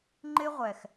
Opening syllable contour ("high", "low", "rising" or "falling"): high